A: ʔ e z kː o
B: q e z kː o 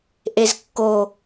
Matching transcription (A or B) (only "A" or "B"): A